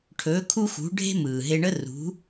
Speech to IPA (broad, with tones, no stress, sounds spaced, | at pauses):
ʈʰ ɵː˩˧ kʰ u˧ x ṳ˩˧ ɖʱ e̤˥ m ɯː˩ ɦ e˧ ɳ ə˥ r ṳ˩˧